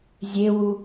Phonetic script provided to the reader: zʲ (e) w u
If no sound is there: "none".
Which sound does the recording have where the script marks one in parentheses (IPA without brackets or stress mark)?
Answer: e